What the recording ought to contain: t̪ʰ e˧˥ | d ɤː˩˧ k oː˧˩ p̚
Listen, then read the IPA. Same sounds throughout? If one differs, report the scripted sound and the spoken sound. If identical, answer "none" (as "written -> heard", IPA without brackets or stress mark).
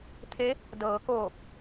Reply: none